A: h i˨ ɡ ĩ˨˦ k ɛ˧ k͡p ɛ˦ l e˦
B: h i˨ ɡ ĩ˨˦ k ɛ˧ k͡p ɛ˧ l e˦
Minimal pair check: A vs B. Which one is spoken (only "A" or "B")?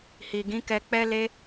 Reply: A